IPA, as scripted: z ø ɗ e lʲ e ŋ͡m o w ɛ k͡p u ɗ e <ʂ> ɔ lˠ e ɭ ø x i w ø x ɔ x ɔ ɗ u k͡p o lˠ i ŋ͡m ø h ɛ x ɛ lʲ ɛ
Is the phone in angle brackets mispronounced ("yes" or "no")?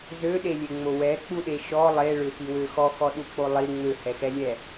yes